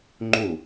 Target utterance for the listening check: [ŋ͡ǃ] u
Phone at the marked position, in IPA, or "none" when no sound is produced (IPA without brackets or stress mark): ŋ͡ǃ